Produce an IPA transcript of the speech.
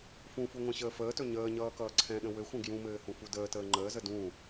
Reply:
fũfu ŋʷɛ̃ɕəːfəːtɵ ɲəːɲʌː kʌːǀʰɛ̃ɗə̃ wɘxʷə̃ ɡjũmɘː hũfudəːtəː ŋ͡ǃəːzə dũ

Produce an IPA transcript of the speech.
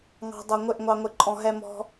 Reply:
ŋɑ̤˦dˤʌ˧ ŋʷɪ˦˨ʔŋʷɑ˧ŋʷɪ˧ ǃʼɔ̃˧ɦɛ˦mɔ̤˦

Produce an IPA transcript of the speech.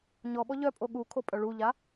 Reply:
ɲɔɓɔ ʎœpʼo ɠu kʰopʼœɭuʎa

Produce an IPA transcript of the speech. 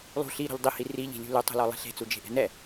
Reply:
lˠṳ ɬiɾɔ̤ʎ dˤihi riʎi̤lʲṳ lʉtˤṳlɔlˠe̤ ɬe̤t͡sud͡ʒe̤ʔɛ̤ nɛ

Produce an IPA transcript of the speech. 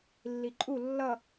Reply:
lːiǃʼu lːʌ

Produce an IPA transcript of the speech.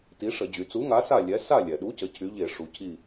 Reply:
ti˨˥ʂə˧˩˧d͡ʑy˩˧ t͡su˨˥ŋa˨˥sa˦˨ lʲɛ˨˥ sa˦˨lʲɛ˩ɗu˨˥cə˩˧ cʰy˨˥ʎe˧˩˧ ʂu˩˧cʰi˦˨

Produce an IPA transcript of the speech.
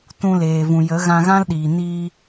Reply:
tũ˧leː˨vũ˨jə˨˦ ɣã˧ɣã˦lɗiː˨ niː˧

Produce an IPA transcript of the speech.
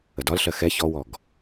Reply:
ədɒlɬɜ xɛ çɔwɔɡ

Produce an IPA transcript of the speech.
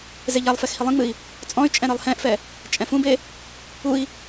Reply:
zeʎalˠfɛx hilˠĩŋ͡mɨi̯ | t͡sʼɔ̃y̯t͡ʃʼɛ̃ ɾɨlˠhɛ̃ʔfɛ | t͡ʃʼɛ̃fũbe | ui̯

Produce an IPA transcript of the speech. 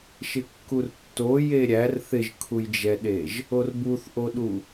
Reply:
ʃɪkːurtːo jeɾʲær θɪʒkʰujd͡ʒɛɗeʒ | orbuθʔoɗu

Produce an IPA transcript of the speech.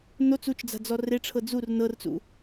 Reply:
not͡s ut͡ʃd͡za̤d͡zɔ reʈ͡ʂʰɤ d͡zur nɤrt͡sṵ

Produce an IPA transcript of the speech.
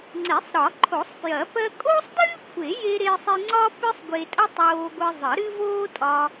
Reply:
ŋ͡ǀe˨˩˦sˤɾɒ˨˩˦ǃʰo˨˩˦sˤpjɐ˨˩˦ pɜ˧kʼoː˥sˤdɨː˥ kʷʰe˨˩˦je˧ ɾe˥sˤe˥ ŋ͡ǀɒː˥pɨ˥sˤɡʷe˧tʼə˥ tˤoː˧ɡʷɨ˧ zˤə˨˩˦ɾɨ˥voː˥tʼɒː˧

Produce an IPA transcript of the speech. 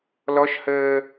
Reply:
lɔʃhəː

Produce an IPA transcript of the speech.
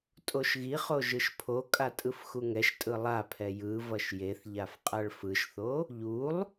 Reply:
tʼoʃɣiχo ʒɯʃpʰokʼa tʼɯfxuŋɛʃtʼɯ lˠapʰɛ jɯ vʌʃjeθʎaf qʼaɭfɯʃθo | ʎulˠ

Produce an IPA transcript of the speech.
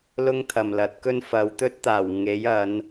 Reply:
lʊ˥ŋt̪ʰɐ˨mlɐ˨˥t̚kɵ˥n fɐ˨˧wt̪ɵ˥t̚t̪aː˨˩w ŋe˨˥j ɐ˨˧n

